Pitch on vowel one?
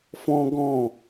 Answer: high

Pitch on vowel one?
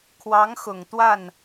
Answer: rising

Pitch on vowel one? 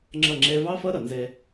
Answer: falling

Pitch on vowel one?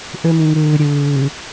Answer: low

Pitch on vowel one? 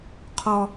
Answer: high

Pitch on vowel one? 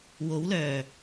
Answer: rising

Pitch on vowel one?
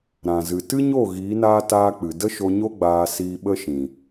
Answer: low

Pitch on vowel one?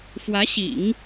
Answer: rising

